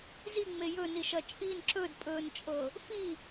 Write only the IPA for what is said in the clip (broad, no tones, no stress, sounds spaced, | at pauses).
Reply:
z i ŋ͡m e j ɵ n i ʃ ɐ t͡ʃʼ i n ǁ ɵ d pʼ ɵː n t͡ʃʼ ɤ | f i